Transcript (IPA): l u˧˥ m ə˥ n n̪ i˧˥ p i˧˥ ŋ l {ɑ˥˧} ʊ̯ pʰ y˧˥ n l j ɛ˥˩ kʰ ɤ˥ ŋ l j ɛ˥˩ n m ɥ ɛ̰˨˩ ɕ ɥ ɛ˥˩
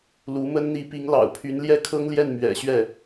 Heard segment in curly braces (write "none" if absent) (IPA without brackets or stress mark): ɑ̰˨˩